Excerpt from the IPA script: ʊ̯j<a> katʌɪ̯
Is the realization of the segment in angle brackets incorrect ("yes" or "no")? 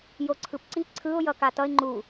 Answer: yes